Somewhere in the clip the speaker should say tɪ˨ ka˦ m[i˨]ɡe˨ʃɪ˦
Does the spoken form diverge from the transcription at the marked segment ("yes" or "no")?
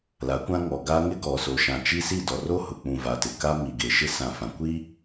no